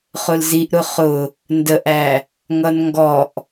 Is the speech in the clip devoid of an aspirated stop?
yes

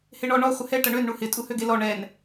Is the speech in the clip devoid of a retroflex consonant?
no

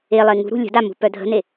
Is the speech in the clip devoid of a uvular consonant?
yes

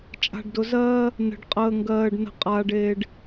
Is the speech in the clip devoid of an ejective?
no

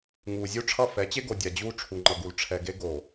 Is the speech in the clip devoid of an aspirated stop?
no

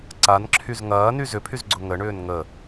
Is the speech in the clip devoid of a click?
no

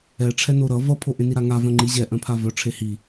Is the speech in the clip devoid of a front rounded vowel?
no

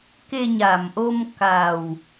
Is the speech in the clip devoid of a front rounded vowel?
yes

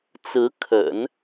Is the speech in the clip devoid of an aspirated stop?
no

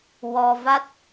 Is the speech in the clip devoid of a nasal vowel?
yes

